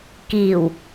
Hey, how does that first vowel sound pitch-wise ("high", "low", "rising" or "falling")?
low